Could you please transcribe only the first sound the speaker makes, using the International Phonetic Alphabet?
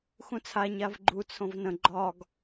x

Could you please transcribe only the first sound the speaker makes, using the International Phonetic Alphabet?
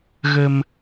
ɣ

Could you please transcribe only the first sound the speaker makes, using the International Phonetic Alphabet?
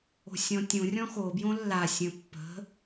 o̤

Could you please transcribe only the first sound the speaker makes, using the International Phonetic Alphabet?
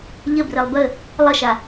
ʎ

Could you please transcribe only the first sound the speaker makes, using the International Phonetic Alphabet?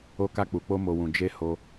o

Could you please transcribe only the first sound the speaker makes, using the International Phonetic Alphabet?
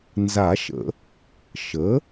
n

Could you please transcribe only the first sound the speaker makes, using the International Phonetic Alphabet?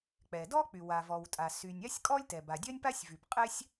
k͡p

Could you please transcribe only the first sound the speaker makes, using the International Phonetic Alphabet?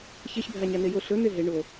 ç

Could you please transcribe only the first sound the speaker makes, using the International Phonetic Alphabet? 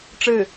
ʈ͡ʂ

